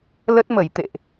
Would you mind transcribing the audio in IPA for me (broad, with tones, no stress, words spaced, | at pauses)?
lə˦˥t̚mə˧˩j t̪ḛ˧˨ʔ